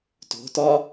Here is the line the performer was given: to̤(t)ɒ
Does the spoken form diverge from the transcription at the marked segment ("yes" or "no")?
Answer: no